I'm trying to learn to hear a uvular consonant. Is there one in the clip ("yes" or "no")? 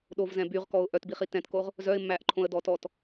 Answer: yes